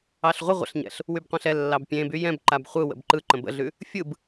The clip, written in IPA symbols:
ɑɬʁʷə ʁʷə̰ɬɲɛ̰ɬ | wybqʷɛ̃ɬɛ lːɑbpʲẽby jɛ̃b ǃabχʷɯ wə̰bǃɯ ǃə̃bə̰ɮʉ | fʲɯb

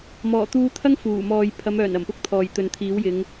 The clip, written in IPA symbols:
mɔː˨˩t̪uː˧t̪ʰɐ˥ŋ fuː˨˩mɔː˨j pʰɐ˨˧mœː˨˩n ɐ˨˩mpʊ˥k̚t̪ʰɔː˨j t̪ɵ˨nt̪ʰiː˨˥wjɪ˨˧ŋ

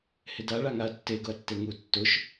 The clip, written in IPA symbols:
hɪda ɭaŋaɐ̯tːe ɡʊɐ̯tːeŋu tːʊʃ

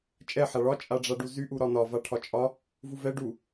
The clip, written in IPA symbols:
t͡ʃʼɛ ħaɭɒ t͡ʃʼaɖ͡ʐaɖuzy ʔuɾɒnɒ vaʈʰɒt͡ʃʼɒ | vuvɛ ɖu

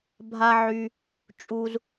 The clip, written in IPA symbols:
bʱa˦ʕy˧ | t͡ʃʼu˧z

